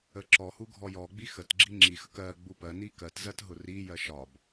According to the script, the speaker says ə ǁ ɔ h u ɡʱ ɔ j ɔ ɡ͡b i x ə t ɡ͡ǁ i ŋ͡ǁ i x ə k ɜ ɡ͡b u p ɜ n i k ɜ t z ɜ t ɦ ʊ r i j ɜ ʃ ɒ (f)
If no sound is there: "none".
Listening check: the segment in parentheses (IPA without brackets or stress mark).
b